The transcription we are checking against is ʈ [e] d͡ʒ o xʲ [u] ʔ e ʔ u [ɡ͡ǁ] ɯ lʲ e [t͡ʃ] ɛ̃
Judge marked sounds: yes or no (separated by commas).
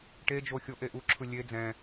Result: yes, no, no, no